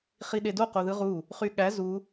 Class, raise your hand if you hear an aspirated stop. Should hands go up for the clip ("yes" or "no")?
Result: no